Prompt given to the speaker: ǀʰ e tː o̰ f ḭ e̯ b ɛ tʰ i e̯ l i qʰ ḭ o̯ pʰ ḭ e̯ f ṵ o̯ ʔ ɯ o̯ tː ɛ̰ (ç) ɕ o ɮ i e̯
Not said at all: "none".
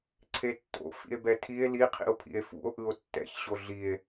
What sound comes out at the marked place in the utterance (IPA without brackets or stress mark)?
ç